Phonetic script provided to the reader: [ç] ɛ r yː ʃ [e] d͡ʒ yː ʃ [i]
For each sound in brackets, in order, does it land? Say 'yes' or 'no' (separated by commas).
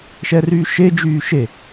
no, yes, no